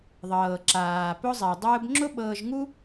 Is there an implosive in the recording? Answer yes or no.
yes